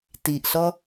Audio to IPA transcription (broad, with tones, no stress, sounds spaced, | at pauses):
t i˧ ʔ ɬ ɔ˥